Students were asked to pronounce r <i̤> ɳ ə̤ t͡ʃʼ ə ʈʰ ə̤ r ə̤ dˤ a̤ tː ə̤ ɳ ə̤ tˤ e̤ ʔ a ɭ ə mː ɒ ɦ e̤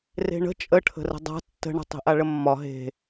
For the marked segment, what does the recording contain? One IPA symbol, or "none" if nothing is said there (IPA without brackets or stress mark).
e̤